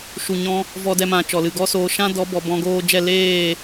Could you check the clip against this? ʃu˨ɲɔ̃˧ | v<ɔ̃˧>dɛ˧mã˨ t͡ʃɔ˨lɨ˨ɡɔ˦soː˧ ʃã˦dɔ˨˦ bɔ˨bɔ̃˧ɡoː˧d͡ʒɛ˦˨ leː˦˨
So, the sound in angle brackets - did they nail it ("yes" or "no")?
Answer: no